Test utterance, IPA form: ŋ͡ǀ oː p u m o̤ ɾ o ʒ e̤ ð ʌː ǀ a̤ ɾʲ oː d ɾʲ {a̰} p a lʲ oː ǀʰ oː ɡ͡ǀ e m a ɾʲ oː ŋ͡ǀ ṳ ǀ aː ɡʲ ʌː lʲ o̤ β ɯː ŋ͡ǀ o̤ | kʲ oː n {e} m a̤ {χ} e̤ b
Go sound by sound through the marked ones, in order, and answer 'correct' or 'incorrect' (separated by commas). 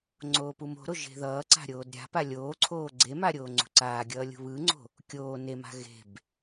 incorrect, correct, incorrect